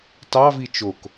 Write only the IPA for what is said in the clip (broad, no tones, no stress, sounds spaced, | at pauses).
t ɑ v i t͡ʃ o k